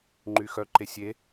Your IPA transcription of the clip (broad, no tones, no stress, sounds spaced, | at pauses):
ŋ͡ǃ y x œ ǃ e sʲ e